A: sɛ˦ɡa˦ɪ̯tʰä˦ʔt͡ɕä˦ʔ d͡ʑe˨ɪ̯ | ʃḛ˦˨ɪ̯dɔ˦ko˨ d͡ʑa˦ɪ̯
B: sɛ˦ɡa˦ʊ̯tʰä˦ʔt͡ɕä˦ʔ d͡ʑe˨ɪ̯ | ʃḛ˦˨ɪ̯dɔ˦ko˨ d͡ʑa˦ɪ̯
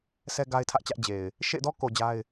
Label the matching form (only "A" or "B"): A